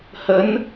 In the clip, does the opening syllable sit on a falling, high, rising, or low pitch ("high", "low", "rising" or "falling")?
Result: rising